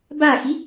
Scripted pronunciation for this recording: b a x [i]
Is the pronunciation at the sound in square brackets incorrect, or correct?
correct